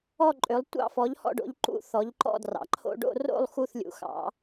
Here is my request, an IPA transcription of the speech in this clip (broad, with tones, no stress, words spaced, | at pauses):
ɔ˥˧ ǃʼø˨˦lˠtʷɑ̰˥˧fɔ˨˦ʎ hɔ̰˥˧ɖo̰˨˦ʎ ǃṵ˥˧θɔ˨˦ʎǃɔ̰˥˧drɑ̰˨˦ ǃʰo̰˥˧ ɖo̰˥˧ro̰˥˧lˠ xu˥˧θlʲṵ˨˦xɑ̰˨˦